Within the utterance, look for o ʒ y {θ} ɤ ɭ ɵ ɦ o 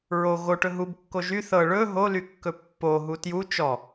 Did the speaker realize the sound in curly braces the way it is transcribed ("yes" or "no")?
yes